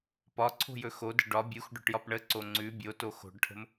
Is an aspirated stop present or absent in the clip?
present